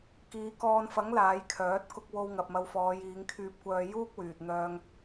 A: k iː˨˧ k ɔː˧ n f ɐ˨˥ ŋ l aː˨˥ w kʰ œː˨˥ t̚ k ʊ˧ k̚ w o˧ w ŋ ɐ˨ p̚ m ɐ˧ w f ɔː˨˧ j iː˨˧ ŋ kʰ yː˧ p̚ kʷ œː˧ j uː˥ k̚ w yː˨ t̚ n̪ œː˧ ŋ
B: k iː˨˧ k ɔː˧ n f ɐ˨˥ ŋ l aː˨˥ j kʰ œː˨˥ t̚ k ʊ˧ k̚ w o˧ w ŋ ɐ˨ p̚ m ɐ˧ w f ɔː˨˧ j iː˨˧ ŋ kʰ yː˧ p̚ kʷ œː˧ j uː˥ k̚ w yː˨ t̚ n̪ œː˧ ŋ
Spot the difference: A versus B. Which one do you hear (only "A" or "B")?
B